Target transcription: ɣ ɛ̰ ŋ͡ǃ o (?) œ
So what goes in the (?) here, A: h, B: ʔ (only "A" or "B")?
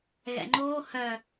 A